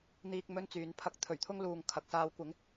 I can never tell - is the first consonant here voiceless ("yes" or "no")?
no